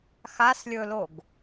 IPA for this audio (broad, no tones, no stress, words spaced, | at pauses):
xaslʲɵloɡ